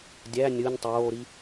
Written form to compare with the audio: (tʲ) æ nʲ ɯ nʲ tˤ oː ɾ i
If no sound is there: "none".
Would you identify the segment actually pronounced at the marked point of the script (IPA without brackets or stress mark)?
dʲ